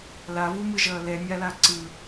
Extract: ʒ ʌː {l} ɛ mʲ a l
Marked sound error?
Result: no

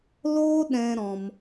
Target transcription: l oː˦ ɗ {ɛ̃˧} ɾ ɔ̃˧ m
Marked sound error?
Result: no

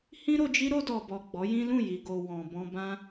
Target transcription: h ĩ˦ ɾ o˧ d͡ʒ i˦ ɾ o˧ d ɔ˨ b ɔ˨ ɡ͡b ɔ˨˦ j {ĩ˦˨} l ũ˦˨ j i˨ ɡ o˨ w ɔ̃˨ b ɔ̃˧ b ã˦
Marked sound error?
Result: yes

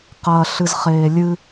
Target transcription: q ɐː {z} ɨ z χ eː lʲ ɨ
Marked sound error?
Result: yes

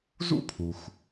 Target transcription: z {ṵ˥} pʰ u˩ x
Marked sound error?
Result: no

